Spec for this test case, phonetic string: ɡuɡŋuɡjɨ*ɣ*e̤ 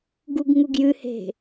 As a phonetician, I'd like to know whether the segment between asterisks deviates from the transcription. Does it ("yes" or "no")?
yes